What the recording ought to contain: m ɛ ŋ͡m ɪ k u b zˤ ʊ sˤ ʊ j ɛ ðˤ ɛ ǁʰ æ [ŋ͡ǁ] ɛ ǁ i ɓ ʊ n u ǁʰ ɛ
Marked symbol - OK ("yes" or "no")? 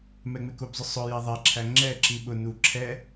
yes